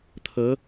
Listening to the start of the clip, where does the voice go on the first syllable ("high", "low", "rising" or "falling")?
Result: rising